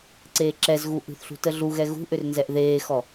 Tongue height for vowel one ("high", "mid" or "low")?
mid